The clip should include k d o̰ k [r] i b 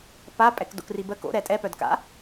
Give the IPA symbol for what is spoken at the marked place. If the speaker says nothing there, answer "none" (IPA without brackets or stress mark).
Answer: r